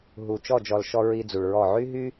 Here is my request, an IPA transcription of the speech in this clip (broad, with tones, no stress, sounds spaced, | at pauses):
ɦ u˨ t͡ʃ ɔ˦˨ d͡ʒ ɔ˨ l ʃ ɔ˧ ɹ i˧ d͡z u˨ ɭ ɹ ɔ˦˨ ʕ y˦ ɦ y˦